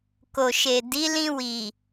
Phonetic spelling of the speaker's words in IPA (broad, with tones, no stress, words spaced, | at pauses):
ko˨ʃe˨ di˨˦lĩ˧ wi˨